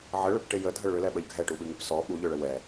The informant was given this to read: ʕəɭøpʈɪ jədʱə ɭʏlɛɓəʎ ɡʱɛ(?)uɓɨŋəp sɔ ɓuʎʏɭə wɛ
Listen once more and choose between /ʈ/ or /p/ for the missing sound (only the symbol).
ʈ